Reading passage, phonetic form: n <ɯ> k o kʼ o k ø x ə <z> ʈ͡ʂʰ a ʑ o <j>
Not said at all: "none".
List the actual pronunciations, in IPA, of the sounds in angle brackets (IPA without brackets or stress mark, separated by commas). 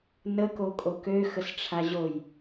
ə, s, j